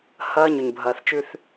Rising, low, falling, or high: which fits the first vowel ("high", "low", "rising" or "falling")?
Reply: high